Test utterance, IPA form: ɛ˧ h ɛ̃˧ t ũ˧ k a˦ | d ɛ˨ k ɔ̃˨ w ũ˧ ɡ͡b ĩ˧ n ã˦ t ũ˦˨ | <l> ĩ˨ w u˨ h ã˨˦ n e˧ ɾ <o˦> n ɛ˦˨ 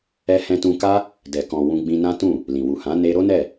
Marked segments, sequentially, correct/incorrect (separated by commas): correct, correct